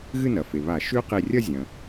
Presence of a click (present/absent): absent